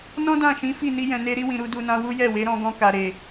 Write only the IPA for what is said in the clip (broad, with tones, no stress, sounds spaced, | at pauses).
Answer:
n ɔ̃˦ d ã˦˨ ʃ ĩ˨˦ f i˦˨ n i˧ j ɛ̃˨ n e˧ ɾ i˧ w ĩ˨ ɾ u˧ d u˧ n ã˦ w u˦ j ɛ˦˨ w e˨˦ ɾ ɔ̃˧ ɡ ɔ̃˧ k a˨ ɾ e˨